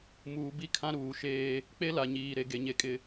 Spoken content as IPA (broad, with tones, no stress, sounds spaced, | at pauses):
m uː˨ b i˦ kʰ ã˦ ɾ uː˨ ʃ eː˦ | k͡p e˦ l a˨ ɲ iː˨ ɾ e˨ ɡ e˨ ɲ e˨ kʼ ɪ˨